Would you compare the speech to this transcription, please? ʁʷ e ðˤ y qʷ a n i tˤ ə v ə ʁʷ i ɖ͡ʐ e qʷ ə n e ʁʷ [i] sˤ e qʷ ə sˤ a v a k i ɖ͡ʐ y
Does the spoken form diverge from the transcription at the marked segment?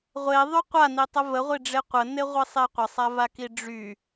no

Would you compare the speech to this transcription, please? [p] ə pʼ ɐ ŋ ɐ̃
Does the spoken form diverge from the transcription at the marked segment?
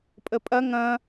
yes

